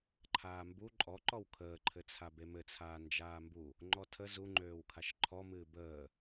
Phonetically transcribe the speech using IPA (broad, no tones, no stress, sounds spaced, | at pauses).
ǃʰ aː m b u ǃʼ ɔ ǃ ɔ w kʰ əː ǃʰ ɘ t͡sʰ a b e m ɘ t͡sʰ aː n d͡ʒ aː m b u | ŋ͡ǃ ɔ tʰ ə z u ŋ͡ǃ øː w kʰ a ʃ ǃʰ ɔ m ɨː b əː